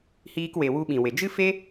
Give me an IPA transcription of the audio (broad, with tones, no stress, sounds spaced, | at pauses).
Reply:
h iː˧ k w e˨ w u˧ ɓ ĩ˨ w e˨ d͡ʒ ɨ˦ f e˦